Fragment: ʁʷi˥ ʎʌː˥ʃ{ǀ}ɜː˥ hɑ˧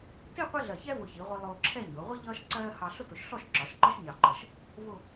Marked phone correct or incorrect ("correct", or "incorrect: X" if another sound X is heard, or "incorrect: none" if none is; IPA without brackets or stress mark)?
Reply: correct